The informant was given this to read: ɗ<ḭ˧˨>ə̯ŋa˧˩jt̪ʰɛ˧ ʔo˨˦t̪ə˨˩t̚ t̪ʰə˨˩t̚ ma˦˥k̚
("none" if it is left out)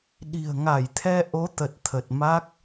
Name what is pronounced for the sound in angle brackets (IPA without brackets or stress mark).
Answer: i̤˨˩